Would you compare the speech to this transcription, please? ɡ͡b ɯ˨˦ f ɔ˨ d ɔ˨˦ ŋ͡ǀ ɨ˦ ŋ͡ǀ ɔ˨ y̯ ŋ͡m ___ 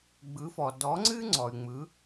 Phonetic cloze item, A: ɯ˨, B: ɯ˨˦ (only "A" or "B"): B